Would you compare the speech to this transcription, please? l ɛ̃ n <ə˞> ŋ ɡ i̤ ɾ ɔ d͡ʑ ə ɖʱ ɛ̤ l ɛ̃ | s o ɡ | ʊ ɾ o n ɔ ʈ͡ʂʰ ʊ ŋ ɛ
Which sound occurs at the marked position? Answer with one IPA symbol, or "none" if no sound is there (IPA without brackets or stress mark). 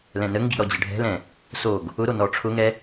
ə